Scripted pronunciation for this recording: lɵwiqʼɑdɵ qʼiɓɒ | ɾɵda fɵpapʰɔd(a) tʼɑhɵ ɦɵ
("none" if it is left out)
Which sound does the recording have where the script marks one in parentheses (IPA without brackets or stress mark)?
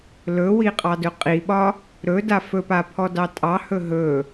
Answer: ɑ